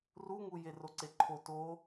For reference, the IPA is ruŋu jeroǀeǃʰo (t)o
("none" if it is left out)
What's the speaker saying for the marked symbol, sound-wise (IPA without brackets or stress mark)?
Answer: t